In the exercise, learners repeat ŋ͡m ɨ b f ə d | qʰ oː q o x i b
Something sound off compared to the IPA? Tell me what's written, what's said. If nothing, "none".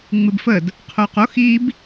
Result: none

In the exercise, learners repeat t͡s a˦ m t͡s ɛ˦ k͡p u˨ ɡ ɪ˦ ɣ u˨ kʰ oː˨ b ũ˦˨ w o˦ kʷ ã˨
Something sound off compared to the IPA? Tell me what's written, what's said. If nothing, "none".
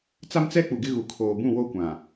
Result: none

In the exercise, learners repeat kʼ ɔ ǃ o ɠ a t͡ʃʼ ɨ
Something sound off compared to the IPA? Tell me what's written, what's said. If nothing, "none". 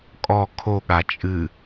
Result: ǃ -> kʰ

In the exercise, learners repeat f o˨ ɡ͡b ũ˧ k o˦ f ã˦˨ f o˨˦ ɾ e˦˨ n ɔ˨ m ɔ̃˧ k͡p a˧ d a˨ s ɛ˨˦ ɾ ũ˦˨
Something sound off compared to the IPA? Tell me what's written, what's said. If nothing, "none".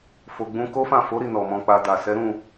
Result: e˦˨ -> i˦˨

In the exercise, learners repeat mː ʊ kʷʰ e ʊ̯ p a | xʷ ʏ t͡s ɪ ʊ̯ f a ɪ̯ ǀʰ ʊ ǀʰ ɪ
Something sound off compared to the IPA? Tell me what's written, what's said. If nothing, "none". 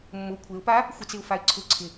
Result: ʏ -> ɪ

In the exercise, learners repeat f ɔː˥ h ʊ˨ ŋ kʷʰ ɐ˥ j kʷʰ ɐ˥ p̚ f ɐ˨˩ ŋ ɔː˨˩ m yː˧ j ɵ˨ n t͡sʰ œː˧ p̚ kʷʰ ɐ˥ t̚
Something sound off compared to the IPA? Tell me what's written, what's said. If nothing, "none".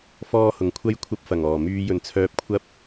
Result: t̚ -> p̚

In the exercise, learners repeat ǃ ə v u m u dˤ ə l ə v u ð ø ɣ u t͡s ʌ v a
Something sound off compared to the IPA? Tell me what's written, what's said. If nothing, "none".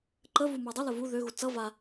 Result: none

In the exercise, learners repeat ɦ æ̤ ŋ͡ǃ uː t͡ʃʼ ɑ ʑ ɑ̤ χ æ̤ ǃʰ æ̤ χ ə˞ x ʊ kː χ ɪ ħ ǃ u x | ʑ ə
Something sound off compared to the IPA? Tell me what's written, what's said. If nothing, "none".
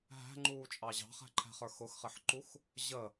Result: kː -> x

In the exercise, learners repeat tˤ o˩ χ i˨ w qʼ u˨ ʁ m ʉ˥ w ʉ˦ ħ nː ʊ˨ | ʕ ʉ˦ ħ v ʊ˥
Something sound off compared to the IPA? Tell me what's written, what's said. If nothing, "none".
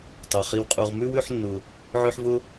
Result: none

